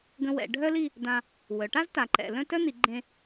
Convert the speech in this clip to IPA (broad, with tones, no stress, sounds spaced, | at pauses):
ɡ ə̃˧ w ɛ̰˩˧ ɖʱ œ˥ l i˥˧ | d ã˧ | w œ˩˧ ʈ a˥ z t a˩˧ ǃ ɛ̰˩˧ l œ̃˥˧ t œ˥ n̪ i˩˧ ɡ͡ǃ ẽ˧